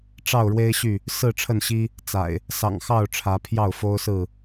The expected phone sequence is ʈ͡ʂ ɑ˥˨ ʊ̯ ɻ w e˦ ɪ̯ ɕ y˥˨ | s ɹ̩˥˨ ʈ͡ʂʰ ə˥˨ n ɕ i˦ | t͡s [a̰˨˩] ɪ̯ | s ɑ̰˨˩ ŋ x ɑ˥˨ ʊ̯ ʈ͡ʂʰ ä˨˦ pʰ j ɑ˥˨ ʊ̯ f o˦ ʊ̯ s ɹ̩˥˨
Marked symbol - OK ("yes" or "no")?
yes